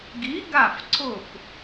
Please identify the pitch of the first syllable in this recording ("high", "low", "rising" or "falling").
rising